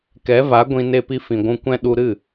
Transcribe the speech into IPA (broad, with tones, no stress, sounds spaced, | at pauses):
k ɛ˨˦ v a˨˦ ɡʷ ĩ˧ n e˧ p i˧ f ĩ˨ ɡʷ ũ˧ kʷ ɛ̃˦ ɗ u˧ ɾ ɨ˦˨